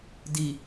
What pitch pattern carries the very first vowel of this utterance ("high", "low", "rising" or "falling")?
low